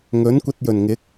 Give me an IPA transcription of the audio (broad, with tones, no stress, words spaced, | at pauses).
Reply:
ŋɵ˨˥nkʷɐ˧t̚jɵ˨˩nŋɪ˨˥k̚